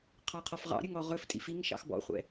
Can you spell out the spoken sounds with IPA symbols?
qʰ ɑ qʰ ɔ f ʁ ɑ̰ ɾʲ ɵ ŋ ɔ ʁ ɵ f tʼ ḭ f i ŋ ʃ ɑ̰ x b ɔ̰ χʷ ɛ̰

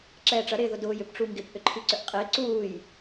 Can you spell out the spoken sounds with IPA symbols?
ǁ ɛː ʈ͡ʂ ɐ ɾ ɪː ð ʊ d ʊː j ʏ p ʈ͡ʂ u ŋ ɡ ɪ p ʔ ʏ ǃʰ i ǀ ʏ ʔ qʼ ɪː ǀ uː j

